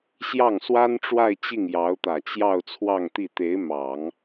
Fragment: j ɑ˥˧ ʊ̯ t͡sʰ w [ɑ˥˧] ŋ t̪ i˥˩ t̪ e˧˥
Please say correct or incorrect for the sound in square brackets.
correct